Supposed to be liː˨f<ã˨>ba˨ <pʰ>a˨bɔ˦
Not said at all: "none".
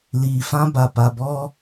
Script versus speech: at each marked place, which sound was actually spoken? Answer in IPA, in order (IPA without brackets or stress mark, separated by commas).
ã˦, p